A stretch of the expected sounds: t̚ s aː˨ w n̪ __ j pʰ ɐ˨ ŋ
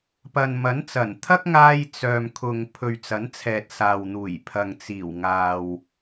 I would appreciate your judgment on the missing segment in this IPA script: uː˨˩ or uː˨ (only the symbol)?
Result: uː˨˩